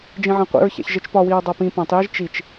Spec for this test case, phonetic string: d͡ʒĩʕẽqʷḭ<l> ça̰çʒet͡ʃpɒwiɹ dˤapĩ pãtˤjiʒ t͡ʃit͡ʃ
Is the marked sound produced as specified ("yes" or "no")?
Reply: no